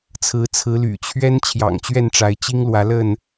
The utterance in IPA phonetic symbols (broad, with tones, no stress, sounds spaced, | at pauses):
t͡sʰ ɹ̩˨˦ t͡sʰ ɹ̩˨˦ l y̰˨˩ t͡ɕʰ ɥ ɛ˦ n t͡ɕʰ j ɑ̰˨˩ ŋ t͡ɕ ɥ ɛ˥˨ n ʈ͡ʂ a˨˦ ɪ̯ t͡ɕ i˦ ŋ l w ä˨˦ l ə˥˨ n